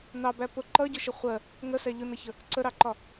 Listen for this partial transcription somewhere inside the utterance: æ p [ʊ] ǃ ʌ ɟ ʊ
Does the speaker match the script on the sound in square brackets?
yes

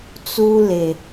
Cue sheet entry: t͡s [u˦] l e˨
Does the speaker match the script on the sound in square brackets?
yes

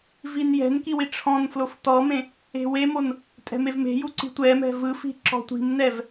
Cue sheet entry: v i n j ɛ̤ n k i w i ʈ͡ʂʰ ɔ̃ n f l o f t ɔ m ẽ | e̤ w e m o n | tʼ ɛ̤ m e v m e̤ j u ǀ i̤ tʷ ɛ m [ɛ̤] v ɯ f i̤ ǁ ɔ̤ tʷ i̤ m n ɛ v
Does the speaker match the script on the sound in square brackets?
yes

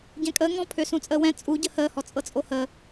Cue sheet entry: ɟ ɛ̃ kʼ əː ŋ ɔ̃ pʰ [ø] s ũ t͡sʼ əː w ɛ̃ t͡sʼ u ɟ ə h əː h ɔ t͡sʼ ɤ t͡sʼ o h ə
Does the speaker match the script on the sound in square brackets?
yes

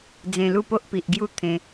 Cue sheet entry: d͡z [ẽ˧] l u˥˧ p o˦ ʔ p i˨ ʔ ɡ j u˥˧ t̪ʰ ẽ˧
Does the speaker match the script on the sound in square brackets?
yes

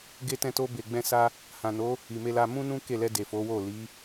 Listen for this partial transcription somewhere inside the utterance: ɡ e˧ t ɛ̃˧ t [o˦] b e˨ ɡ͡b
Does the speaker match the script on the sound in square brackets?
no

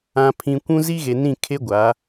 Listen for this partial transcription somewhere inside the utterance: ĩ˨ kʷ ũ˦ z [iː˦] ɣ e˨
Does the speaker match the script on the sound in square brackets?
no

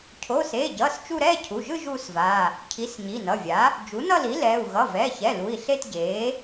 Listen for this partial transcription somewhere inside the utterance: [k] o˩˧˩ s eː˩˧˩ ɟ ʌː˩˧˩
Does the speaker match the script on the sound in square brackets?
no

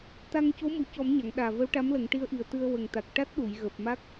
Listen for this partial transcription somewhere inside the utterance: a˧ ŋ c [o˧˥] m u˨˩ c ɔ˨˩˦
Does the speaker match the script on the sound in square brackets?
yes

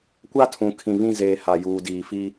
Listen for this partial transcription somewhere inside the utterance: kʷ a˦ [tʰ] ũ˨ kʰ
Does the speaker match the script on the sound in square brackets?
yes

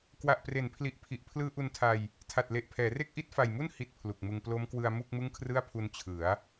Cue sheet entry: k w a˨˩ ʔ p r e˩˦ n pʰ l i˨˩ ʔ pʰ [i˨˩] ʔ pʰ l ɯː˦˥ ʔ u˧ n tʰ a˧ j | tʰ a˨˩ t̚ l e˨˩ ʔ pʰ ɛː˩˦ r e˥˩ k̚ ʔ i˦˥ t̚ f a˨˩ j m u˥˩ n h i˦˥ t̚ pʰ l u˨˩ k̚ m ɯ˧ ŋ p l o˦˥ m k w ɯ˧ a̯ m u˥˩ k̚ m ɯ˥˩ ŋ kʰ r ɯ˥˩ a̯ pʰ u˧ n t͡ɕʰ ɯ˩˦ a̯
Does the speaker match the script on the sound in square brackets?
yes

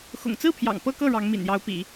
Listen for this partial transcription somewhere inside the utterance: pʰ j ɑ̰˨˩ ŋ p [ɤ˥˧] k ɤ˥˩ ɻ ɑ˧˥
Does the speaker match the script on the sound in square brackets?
yes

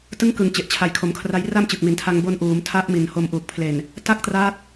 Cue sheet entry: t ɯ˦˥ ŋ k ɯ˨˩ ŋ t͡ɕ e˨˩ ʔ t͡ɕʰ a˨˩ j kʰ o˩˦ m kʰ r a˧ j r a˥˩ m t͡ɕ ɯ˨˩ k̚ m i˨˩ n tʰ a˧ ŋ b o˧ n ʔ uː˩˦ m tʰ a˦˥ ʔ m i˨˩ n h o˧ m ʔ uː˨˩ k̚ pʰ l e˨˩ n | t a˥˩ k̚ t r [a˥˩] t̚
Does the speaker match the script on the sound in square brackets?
no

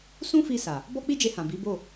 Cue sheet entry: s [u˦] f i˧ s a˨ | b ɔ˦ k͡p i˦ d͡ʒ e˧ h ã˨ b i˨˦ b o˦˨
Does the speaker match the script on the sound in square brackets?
no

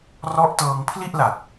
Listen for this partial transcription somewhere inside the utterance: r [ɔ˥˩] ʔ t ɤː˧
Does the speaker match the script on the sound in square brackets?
no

